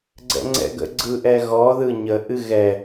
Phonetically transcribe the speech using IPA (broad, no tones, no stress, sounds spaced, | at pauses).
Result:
ɡ͡ǀ ɛ̰ ŋ͡ǀ ɛ̰ ɡ ə̰ ɡ͡ǀ ɯ ʔ ɛ ɣ ɔ ð ɯ ɲ ə ʔ ɨ ɣ ɛ